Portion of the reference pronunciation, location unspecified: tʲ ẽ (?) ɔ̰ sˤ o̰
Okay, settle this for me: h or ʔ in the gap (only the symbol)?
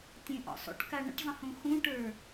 ʔ